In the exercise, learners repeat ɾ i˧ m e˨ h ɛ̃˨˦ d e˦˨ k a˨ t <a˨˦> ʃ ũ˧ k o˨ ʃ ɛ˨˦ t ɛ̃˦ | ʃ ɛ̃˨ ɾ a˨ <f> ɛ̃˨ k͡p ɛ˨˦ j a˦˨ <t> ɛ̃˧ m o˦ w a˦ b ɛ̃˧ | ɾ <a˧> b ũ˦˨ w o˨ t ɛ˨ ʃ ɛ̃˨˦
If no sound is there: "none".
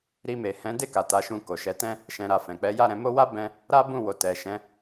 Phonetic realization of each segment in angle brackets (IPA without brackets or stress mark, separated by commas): a˨˦, f, ɾ, a˦